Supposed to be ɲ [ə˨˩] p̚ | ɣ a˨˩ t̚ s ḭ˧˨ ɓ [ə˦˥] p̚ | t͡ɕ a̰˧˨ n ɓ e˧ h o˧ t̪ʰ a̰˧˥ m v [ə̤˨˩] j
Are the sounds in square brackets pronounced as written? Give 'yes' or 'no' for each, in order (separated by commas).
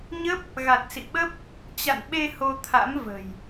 no, yes, yes